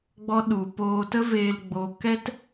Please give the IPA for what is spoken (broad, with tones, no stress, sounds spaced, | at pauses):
ɡ͡b ɔ˦ ɗ u˨ p oː˧ t ə˦ v eː˧ l ɡ͡b o˧ k ɛ˦ t